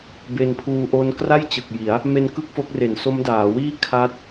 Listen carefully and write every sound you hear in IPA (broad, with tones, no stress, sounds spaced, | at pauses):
b e˧ n pʰ uː˧ ʔ o˦˥ n k r a˥˩ j t͡ɕ ɯ˨˩ k̚ j i˩˦ a̯ | m e˧ n k ɯ˥˩ k̚ f o˦˥ k̚ r e˨˩ n s o˦˥ m d aː˩˦ w iː˥˩ kʰ a˦˥ t̚